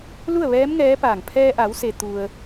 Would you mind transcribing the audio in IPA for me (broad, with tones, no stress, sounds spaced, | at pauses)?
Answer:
l u˥˨ ə̯ ʋ ɛː˧˥ m ŋ ɛː˧˥ p aː˧˩ ŋ pʰ ɛː˧ ʔ a˩˧ w s e˩ t̪ u˩ ə̯